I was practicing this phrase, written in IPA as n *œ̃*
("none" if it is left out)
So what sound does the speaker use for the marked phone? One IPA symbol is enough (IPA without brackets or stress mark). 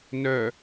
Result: œ